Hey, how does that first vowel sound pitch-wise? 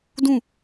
falling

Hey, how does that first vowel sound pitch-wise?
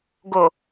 low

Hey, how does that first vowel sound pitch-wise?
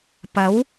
rising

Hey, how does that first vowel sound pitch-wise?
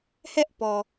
high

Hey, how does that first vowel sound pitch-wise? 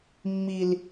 high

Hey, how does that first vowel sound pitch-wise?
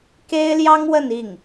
high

